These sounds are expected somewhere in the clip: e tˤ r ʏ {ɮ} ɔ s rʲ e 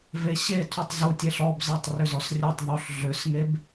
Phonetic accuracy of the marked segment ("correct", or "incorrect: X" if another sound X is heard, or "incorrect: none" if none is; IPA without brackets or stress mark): incorrect: z